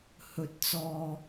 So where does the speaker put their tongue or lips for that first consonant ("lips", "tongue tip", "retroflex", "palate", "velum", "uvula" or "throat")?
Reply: throat